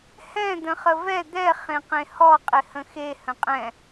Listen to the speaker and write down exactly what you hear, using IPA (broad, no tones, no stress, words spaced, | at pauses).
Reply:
hɛ̃ d̪ə̃χəvɛ d̪ɛ χẽqẽhɔ qʼɪhə̃xe hə̃qʼɛ̃